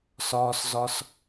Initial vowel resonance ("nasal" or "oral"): oral